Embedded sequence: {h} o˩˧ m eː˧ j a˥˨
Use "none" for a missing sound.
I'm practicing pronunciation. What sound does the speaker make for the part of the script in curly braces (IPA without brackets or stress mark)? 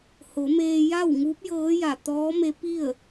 h